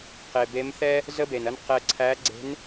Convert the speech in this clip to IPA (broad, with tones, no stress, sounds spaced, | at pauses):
q e˩ b e˧˥ m θ ɛ˥ | z ə˥ b e˩ n ɐ˥ n q ɛ˧ ǀʰ æ˧˥ ɡ͡ǀ e̤˧˥ n